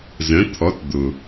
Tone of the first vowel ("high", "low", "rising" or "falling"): rising